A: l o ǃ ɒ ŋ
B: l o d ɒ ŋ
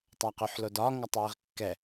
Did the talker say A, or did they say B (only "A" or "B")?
B